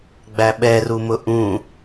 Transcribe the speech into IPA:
ɡ͡b æ ɓ ɛ r u m ʊ ʔ ũ

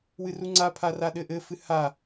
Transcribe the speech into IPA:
w ɨ r u ŋ͡ǀ a pʰ a r a ɗ ɘ ʔ ɘ f ɨ h a

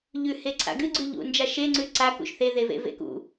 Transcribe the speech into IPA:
ʎ ʉ h e ǀʰ a̰ ɡ ɨ ɡ͡ǀ ʉ ʎ ṵ n d͡ʒ a ʃ e ŋ͡ǀ ʉ ǀ a k ṵ ʃ θ e ð e v ḛ v ḛ k ṵ

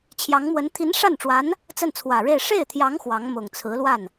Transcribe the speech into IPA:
t͡ɕʰ j ɑ˧˥ ŋ m w ə˧˥ n t̪ʰ i˧˥ n ʂ a˥˩ n ʈ͡ʂ w a˧˥ n | t͡s ə˥˩ n t͡sʰ w ä˨˩ ɻ e˥˧ ɪ̯ ʂ e˥˩ ɪ̯ t̪ʰ j ɑ˧˥ ŋ x w ɑ˧˥ ŋ m ʊ˨˩ ŋ t͡sʰ ɹ̩˧˥ l w a˥˩ n

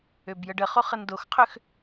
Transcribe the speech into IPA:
ø b j ə ɖ ə χ o χ ə n d o x qʰ ø x

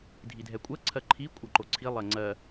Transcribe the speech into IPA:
dʱ i dʱ ɛ kʷʼ ɜ ǀʰ ɜ ǃʰ i kʷʼ ɜ ǃ o ǀʰ i lˠ ɜ ŋ͡ǀ ɜ

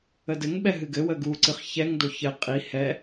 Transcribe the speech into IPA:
ə d ɘ ŋ ɓ ɛ ɦ ɨ ɡ ɘ w ə ɡ u ǀ ɨ χ ç ɛ ŋ d o ç ɘ qʼ i h ɛ

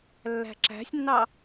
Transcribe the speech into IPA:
lː æ̤ ǁ æ̤ sʲ nː ɑ

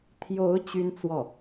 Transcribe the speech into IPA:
t̪ʰ j o˧˥ ʊ̯ t͡ɕ y˥ n t͡s w ɔ˥˩

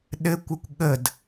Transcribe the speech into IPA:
ɗ ɘ kʷ ə kʷ ɠ ə d

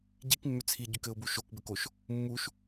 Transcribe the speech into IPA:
ɟ i k mː ʏ t͡sʰ i ɟ ʏ k ɘ ʊ̯ b u ʃ o k b ɘ k o ʃ | mː u ʃ

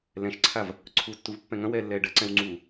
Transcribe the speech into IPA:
l ɛ̃ ʃ ǀʰ a v | ǀʰ u tː u v pː ɛ̃ ŋ ɐ̃ w ɛː lː ɛː ɖ ɐ ǀ ɛ̃ w ŋ͡ǀ uː

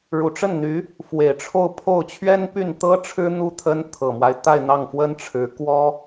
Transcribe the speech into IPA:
ɻ u˨˩ ʈ͡ʂ ə˥˩ n n̪ y˧˥ | f w e˨˩ ɪ̯ ʈ͡ʂʰ o˥˧ ʊ̯ pʰ o˥˩ ʊ̯ t͡ɕʰ ɥ ɛ˥ n p y˥˩ n t̪ ɤ˥ ʈ͡ʂʰ ɻ̩˥ n̪ u˥˩ t̪ʰ ə˥ n t̪ʰ ɤ˨˩ m w a˦ ɪ̯ t̪ a˥˧ ɪ̯ n̪ ɑ˥˩ ŋ f w ə˥ n ʈ͡ʂʰ ɻ̩˧˥ k w ɔ˥

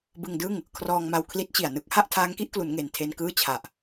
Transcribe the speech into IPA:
b ɯ˧ ŋ d ɯ˥˩ ŋ | kʰ r ɔː˧ ŋ m a˧ w kʰ l i˦˥ t̚ t͡ɕ i˨˩ a̯ n ɯ˦˥ k̚ h a˥˩ ʔ tʰ aː˦˥ ŋ k i˦˥ ʔ k l u˩˦ n ŋ e˨˩ n tʰ e˧ n k ɯː˥˩ t͡ɕʰ a˨˩ ʔ

